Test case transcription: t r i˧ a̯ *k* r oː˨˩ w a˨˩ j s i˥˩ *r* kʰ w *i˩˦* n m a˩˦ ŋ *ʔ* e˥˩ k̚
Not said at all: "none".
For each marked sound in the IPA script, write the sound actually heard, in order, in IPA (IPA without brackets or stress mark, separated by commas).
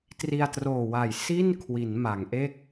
t, n, i˩˦, ʔ